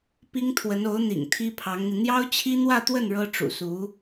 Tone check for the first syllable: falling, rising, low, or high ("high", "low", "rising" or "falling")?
high